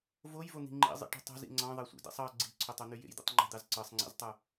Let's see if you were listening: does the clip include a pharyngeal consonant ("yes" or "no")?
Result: no